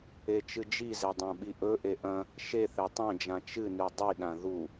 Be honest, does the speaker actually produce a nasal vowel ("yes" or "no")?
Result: yes